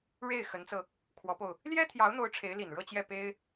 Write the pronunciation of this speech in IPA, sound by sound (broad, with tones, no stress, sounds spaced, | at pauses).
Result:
ɻ e˥˩ ɪ̯ x ə˧˥ n t͡s ɤ˧ | kʰ w ɔ˧˥ p o˧ ʊ̯ | l j ɛ˥ t̪ʰ j ɑ˧˥ ʊ̯ n̪ o˧˥ ʊ̯ ʈ͡ʂʰ e˧˥ ɪ̯ l i˨˩ n ɻ ɤ˥˧ t͡ɕ j ɛ˥˩ p e˥ ɪ̯